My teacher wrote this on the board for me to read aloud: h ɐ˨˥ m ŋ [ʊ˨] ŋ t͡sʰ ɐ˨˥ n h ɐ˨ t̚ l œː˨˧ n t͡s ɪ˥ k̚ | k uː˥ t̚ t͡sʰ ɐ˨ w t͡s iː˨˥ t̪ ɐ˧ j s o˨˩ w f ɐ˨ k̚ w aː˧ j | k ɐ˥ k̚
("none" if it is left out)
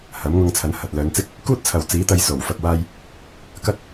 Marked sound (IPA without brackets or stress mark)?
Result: ʊ˧